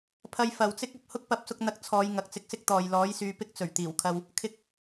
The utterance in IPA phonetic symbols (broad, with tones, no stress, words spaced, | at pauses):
pʰɐ˧jfɐ˨wt͡sɪ˥k̚ ɐ˨p̚ hʊ˥k̚pɐ˨˥p̚sʊ˧k̚n̪ɐ˨˥k̚ t͡sʰɔː˨˧jŋɐ˨k̚ t͡sɪ˧k̚sɪ˥k̚ t̪ɔː˨jlɔː˨˥jsyː˨˧ pɪ˥k̚t͡sɵ˨˩ɥt̪iː˨˩wkʰɐ˧w | kʰɪ˧k̚